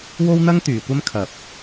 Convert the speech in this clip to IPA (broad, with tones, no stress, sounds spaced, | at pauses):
w o˥ w n̪ ɐ˥ ŋ t̪ yː˨˧ kʷ ɐ˥ m kʰ ɐ˧ p̚